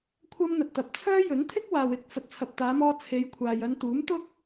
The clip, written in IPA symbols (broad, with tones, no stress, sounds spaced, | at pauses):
kʷʰ ɐ˥ m n̪ ɐ˨ t̚ t̪ ɐ˨ p̚ t͡sʰ œː˥ j ɵ˨˥ n t̪ʰ ɪ˥ k̚ w aː˨ w ɪ˧ k̚ f ɐ˨ t̚ t͡sʰ ɐ˨ p̚ t̪ aː˨˧ m ɔː˧ t͡sʰ e˨˧ j kʷʰ aː˨ j ɐ˧ n t̪ uː˨˥ m t̪ ʊ˥ k̚